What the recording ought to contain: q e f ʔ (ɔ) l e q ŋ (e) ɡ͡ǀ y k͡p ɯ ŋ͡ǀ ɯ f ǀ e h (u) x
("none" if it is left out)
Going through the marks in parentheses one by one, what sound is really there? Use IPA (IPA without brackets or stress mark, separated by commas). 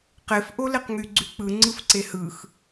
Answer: o, y, ɯ